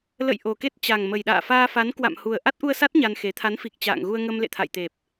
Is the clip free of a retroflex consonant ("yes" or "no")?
yes